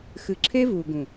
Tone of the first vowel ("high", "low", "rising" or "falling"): low